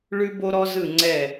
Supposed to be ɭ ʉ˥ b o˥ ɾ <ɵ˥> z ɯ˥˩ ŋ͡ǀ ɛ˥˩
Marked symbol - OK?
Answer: no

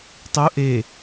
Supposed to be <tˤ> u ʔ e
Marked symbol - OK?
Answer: yes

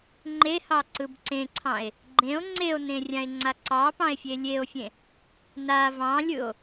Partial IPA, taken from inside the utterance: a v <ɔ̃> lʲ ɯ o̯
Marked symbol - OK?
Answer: no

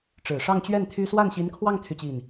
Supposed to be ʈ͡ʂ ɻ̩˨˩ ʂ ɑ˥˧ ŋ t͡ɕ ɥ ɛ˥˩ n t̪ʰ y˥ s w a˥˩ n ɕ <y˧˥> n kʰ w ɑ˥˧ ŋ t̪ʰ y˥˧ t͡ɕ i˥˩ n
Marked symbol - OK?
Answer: no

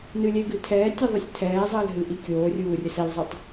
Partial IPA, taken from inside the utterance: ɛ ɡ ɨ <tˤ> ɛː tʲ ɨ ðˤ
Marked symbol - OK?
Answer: no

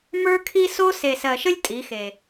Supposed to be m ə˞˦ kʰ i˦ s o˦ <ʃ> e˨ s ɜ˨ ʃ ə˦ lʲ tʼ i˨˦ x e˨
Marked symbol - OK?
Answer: no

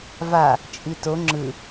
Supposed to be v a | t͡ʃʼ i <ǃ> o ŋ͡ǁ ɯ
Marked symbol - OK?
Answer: no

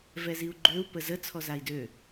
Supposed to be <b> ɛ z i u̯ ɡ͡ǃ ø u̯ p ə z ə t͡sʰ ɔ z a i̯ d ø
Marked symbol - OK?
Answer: no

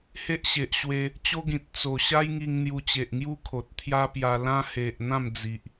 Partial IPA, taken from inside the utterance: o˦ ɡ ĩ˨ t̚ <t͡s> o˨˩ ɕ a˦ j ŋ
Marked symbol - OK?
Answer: yes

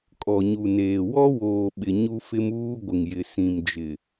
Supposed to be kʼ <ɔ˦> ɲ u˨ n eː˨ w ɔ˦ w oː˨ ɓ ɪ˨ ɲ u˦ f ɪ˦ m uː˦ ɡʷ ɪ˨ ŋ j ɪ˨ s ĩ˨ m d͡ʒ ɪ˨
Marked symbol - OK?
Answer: no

